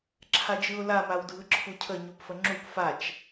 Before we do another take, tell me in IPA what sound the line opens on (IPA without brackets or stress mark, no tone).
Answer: ǁʰ